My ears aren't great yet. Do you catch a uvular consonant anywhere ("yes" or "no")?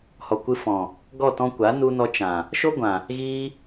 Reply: no